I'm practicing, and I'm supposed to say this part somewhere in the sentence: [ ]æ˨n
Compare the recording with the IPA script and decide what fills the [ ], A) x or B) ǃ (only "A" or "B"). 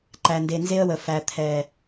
B